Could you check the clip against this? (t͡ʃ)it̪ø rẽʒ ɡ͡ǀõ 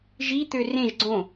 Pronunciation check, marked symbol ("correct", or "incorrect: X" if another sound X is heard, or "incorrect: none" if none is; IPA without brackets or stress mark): incorrect: ʒ